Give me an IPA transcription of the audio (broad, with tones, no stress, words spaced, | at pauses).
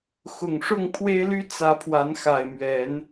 xʊ˨˩ŋʂʊ˥˨ŋpʰwe˦ɪ̯ly˦ t͡sä˨˦pʰwa˨˦nxa˨˩ɪ̯mɥɛ˨˦n